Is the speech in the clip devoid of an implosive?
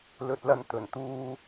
yes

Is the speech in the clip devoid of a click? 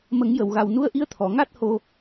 yes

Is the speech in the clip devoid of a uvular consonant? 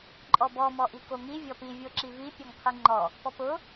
no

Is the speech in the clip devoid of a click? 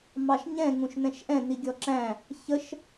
no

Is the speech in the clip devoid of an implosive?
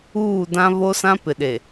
no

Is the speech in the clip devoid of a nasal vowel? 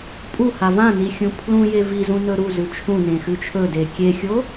no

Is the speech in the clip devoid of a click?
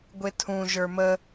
yes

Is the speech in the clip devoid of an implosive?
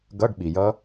no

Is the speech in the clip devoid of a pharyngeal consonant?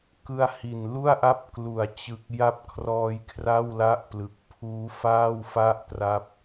yes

